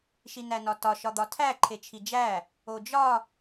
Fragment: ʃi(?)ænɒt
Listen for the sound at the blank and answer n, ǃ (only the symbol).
n